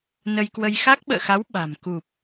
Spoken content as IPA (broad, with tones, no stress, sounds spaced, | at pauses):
n ə˧ j k w ə˧ j x a˦˥ k̚ ɓ ə̰ː˧˨ x a˨˦ w ɓ a̤˨˩ m k u˨˩ p̚